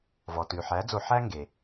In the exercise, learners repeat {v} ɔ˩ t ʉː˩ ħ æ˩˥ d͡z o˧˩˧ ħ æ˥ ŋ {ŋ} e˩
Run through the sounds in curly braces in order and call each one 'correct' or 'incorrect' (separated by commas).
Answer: correct, incorrect